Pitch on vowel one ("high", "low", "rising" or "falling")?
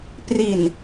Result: low